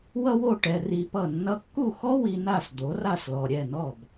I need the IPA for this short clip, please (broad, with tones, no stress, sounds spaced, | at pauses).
w ʌ˥ w o˥˩ ʈ ɛ˧ r i˧ p ʌ˥˩ nː ʌ˧ kː u˥˩ x ɔ˥ w i˧ n a˥˩ s d̪ o˩˥ r a˥˩ s l ɔ˩ ɾʲ ɛ˥˩ n ɔ˥˩ b